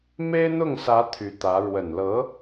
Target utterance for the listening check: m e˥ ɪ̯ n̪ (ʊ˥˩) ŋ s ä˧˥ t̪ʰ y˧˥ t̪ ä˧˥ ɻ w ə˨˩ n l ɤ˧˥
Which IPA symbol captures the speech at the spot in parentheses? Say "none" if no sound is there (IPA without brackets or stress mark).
ʊ˥˩